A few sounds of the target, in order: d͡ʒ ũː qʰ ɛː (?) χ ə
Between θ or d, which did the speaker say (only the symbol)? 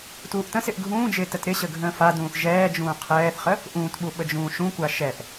θ